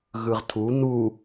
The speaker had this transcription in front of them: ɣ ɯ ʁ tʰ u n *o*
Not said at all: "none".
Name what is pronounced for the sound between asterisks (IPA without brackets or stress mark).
u